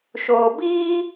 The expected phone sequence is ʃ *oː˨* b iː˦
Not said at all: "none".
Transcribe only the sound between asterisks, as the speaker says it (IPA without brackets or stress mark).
oː˨